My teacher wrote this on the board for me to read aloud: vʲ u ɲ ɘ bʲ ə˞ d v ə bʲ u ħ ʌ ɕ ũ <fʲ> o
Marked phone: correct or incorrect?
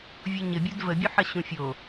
correct